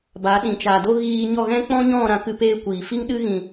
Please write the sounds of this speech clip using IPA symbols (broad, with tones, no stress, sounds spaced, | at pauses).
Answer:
b a˨˦ ɗ ĩ˨ t͡ʃ a˨ d o˦ ɣ iː˧ ɲ ɔ˦˨ ɣ ɛ̃˦ k͡p ɔ̃˦ ɲ ɔ̃˦˨ ɾ ã˦ k ɨ˦ p eː˦ kʷ iː˨ f i˦ ŋ ɗ ɨ˦ ɣ ĩ˨